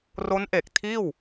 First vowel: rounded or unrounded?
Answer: rounded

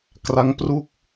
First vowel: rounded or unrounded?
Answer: unrounded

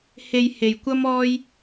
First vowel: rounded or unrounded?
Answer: unrounded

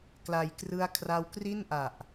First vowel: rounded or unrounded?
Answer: unrounded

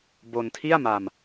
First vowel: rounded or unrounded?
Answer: rounded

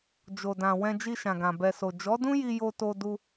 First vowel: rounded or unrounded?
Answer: rounded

